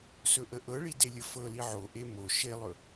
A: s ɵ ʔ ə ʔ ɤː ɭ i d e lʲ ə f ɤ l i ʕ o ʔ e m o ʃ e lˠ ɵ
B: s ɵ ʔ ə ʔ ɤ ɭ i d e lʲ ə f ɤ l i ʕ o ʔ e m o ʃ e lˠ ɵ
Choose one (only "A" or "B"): B